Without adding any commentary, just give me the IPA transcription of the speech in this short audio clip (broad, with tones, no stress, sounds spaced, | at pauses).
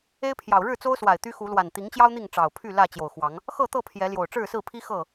e˦ ɪ̯ pʰ j ɑ˨˩ ʊ̯ ɻ ɻ̩˥˨ t͡s o˦ ʊ̯ s w a˨˩ ɪ̯ t̪ y˦ x u˨˦ l w a˨˩ n t̪ i˨˦ ŋ t͡ɕ j ɑ˦ ʊ̯ n̪ i˥˨ ŋ ʈ͡ʂ ɑ˨˩ ʊ̯ pʰ y˥˨ l ä˥˨ t͡ɕ j o˨˩ ʊ̯ x w ɑ˨˦ ŋ | x ɤ˥˨ t̪ ɤ˥˨ pʰ j ɛ˨˦ l j o˨˩ ʊ̯ ʈ͡ʂ ɻ̩˥˨ s ɹ̩˥˨ pʰ i˦ x ɤ˥˨